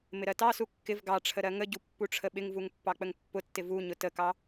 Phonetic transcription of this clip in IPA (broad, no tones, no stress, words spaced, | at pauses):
mɪɾɜtɑsu kːɪv ɡɑʈ͡ʂʰə ɾɜŋəɟu pːuʈ͡ʂʰəɓɪŋvuŋ pːɑk͡pəŋpːʊtːɪ vuɲʊ təkɑ